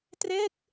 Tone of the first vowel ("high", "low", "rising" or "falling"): falling